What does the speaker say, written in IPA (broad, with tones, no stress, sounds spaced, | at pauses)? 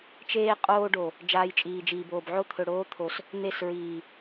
t͡ʃ eː˦ qʼ oː˦ ɖ o˨ | d͡ʒ aː˧ j t͡ʃʼ iː˨ d͡ʒ iː˨ b oː˨ b ʕ o˦ t̪ʰ ɵ˨ ɽ oː˦ t̪ʰ o˨ s | n̪ e˦˨ s ɹ iː˨